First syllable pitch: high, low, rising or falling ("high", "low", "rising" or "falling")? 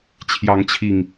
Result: rising